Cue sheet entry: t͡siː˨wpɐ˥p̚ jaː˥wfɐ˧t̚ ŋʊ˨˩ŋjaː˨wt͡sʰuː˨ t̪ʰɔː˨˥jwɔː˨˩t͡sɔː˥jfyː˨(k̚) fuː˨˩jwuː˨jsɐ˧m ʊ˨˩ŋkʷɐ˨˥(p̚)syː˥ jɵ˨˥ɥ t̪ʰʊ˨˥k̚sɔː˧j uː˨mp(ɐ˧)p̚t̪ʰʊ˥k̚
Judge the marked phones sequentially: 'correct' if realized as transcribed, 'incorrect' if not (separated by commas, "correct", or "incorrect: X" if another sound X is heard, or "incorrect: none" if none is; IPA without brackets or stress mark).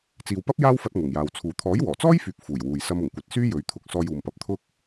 correct, incorrect: t̚, incorrect: ɐ˨˥